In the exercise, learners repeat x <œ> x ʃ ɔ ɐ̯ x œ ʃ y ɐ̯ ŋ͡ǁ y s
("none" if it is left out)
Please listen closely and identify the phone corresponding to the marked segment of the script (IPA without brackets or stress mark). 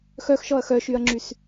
œ